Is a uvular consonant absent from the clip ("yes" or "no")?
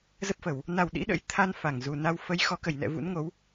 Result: yes